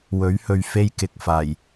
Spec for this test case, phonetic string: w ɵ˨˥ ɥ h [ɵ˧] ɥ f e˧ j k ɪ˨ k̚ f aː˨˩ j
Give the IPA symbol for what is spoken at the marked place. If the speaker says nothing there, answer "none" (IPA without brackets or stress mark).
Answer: ɵ˨